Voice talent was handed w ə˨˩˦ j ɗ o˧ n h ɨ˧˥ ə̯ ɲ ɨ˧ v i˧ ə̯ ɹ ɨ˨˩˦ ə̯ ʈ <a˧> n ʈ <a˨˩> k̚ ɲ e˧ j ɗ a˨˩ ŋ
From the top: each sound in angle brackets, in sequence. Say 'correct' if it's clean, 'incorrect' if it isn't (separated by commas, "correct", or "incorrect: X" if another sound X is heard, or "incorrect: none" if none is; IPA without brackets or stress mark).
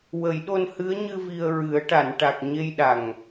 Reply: incorrect: a˨˩˨, correct